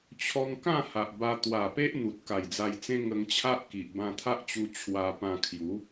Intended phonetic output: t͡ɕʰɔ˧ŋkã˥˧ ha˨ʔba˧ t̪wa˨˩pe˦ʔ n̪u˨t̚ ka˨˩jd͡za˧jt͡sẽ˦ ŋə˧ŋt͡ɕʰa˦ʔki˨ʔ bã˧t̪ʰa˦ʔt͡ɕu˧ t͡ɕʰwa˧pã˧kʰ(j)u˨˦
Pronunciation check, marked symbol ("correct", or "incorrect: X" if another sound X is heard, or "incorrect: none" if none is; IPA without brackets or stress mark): correct